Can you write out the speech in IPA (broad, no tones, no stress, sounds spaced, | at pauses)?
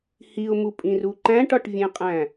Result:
h i ʊ̯ m u pʼ ĩ r u ǃ æ̃ ʈ ɒ ʈ vʲ ẽ qʼ æ̃